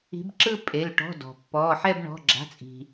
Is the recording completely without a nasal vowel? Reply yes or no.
yes